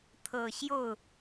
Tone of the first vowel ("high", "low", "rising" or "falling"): low